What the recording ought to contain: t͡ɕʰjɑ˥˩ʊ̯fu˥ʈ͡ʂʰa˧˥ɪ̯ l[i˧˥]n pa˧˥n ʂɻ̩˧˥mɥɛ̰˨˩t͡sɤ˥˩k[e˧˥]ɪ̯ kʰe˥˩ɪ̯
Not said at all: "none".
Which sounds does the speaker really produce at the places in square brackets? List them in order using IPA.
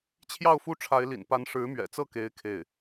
ḭ˨˩, e˧˥

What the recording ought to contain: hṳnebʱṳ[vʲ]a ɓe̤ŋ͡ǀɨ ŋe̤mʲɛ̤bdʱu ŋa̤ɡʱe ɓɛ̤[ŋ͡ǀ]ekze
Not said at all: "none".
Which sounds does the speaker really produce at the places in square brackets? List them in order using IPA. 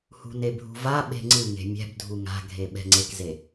v, ŋ͡ǀ

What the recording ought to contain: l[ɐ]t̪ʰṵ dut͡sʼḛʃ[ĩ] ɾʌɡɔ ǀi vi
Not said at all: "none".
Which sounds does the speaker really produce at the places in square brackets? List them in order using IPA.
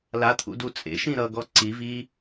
a, ĩ

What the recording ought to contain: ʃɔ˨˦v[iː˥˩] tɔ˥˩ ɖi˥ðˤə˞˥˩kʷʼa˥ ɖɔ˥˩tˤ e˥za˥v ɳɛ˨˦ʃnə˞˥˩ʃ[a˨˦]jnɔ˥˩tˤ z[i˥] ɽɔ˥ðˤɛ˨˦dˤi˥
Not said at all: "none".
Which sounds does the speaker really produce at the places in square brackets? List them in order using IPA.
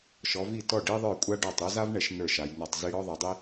i˥˩, a˨˦, i˥

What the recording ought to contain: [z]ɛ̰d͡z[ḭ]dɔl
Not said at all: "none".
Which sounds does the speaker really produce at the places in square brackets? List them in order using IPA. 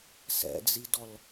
s, i

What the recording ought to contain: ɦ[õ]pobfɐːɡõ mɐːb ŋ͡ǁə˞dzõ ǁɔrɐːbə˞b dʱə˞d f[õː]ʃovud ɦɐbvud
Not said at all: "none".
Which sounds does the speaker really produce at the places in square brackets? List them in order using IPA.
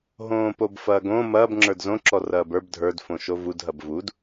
õː, õ

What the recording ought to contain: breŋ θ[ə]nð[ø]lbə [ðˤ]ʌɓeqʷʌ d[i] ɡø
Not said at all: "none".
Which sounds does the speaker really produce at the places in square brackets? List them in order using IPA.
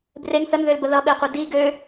ə, ø, ð, i

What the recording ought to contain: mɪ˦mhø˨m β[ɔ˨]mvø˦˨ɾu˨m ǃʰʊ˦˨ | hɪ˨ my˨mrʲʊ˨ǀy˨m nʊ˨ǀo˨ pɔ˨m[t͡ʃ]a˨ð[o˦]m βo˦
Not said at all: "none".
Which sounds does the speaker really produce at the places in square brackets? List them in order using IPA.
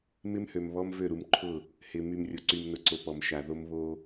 ɔ˦, ʃ, o˦

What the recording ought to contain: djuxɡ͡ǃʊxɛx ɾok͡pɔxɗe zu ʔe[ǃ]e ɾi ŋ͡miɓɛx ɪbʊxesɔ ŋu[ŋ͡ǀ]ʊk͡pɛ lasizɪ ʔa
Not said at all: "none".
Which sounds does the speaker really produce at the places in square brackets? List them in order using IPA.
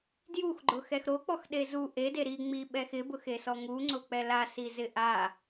d, ŋ͡ǀ

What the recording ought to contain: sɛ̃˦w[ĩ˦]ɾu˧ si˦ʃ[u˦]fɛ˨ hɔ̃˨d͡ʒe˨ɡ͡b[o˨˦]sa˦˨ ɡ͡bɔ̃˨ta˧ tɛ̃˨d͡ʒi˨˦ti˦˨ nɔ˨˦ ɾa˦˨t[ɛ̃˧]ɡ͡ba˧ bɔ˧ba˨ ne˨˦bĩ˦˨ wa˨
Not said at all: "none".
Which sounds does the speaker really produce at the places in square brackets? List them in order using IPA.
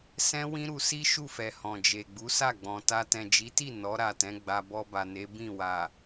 ĩ˦, u˦˨, u˨˦, ɛ̃˨˦

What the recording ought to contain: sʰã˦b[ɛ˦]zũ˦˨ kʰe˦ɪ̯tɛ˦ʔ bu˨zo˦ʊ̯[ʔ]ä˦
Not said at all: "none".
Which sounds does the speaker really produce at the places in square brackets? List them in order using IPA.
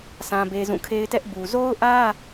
e˦, ʔ

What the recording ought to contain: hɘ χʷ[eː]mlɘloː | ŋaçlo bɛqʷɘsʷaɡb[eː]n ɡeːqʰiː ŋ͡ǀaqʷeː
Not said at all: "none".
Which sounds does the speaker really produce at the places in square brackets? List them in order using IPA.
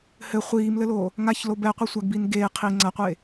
iː, iː

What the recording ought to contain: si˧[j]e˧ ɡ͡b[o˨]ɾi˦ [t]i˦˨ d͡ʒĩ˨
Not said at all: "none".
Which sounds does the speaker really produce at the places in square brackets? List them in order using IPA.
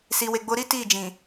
w, o˧, t

